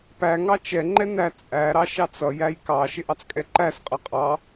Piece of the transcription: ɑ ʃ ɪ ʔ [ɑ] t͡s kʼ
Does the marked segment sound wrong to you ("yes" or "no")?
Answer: no